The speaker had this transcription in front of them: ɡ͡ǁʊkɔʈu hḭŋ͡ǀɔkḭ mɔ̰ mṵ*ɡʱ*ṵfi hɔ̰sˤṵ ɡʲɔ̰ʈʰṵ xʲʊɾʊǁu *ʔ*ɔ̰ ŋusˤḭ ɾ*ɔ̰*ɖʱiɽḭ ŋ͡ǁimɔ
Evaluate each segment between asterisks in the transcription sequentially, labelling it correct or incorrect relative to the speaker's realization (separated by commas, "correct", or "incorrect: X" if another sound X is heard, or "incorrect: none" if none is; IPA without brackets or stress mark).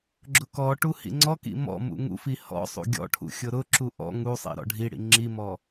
incorrect: ŋ, correct, correct